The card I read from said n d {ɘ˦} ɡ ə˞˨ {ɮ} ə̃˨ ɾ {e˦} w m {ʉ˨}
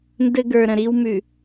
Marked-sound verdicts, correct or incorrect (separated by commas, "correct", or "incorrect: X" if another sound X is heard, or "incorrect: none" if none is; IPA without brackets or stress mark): correct, incorrect: ɾ, incorrect: i˦, correct